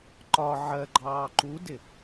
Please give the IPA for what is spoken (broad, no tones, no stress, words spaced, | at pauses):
ǃɒ ʕɜɡ͡ǃɑː ǃudɪ